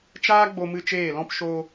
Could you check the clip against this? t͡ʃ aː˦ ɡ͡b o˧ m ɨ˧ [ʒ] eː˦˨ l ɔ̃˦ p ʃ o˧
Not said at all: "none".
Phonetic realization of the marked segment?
t͡ʃ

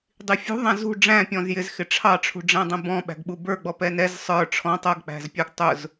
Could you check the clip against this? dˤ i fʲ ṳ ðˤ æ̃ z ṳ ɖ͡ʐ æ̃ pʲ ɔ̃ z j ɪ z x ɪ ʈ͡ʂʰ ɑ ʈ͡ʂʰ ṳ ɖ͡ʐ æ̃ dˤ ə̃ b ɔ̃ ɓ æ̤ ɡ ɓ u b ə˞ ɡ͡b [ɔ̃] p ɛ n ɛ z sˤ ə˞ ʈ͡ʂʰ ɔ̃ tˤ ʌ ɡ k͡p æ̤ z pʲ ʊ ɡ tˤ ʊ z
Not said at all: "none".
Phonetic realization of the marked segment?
ɔ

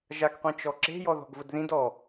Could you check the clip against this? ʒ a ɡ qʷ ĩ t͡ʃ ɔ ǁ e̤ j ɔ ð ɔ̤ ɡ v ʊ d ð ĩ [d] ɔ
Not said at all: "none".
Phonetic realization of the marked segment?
d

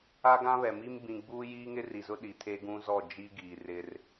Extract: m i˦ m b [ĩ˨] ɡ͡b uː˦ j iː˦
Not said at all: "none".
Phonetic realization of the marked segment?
ĩ˨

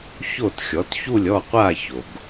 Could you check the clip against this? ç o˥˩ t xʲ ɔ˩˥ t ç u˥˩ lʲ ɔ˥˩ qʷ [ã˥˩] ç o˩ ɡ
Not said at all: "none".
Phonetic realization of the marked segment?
a˥˩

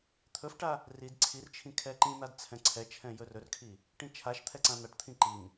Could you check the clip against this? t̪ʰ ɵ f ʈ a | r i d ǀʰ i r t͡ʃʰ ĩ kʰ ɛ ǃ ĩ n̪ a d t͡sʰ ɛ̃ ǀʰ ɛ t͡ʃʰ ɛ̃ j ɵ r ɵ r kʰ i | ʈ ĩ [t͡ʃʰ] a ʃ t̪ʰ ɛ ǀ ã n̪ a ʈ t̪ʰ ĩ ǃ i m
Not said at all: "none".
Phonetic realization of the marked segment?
t͡ʃʰ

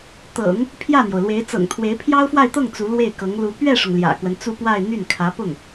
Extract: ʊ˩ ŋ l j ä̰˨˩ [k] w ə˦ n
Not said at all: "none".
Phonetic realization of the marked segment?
k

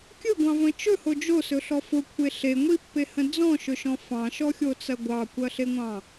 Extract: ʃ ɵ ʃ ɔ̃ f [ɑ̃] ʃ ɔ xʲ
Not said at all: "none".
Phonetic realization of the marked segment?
ɑ̃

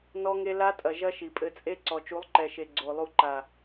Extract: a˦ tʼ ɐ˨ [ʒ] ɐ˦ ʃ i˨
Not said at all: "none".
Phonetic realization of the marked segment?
ʒ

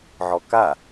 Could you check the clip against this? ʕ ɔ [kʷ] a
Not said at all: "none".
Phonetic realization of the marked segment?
k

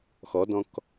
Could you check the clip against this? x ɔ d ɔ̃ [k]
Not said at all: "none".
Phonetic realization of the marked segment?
k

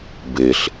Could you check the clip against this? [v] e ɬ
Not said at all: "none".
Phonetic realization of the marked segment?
b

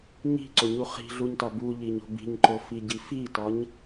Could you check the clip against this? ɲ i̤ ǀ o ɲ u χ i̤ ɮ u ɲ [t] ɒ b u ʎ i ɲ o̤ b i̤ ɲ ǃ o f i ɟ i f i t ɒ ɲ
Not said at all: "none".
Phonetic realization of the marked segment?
t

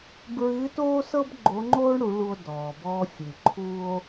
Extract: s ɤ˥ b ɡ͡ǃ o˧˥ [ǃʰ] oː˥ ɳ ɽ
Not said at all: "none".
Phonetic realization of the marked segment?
ŋ͡ǃ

